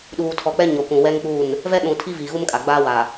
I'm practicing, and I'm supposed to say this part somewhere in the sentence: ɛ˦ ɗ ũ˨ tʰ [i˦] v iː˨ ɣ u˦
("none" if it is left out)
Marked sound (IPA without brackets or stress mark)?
i˦